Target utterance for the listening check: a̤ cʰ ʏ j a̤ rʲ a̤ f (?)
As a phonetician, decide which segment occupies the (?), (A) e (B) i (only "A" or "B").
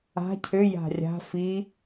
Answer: B